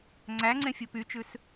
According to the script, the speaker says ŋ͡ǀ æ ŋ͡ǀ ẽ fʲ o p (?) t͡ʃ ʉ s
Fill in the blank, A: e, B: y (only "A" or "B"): B